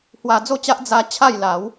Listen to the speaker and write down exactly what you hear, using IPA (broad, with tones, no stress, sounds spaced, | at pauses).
h w a˧ d͡z o˥˧ t͡ɕ a˦ ʔ d͡z a˦ t͡ɕʰ a˥˧ j l a˨˦ w